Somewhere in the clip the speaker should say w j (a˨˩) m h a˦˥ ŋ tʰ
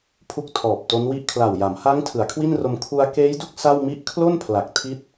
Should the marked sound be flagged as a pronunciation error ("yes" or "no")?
yes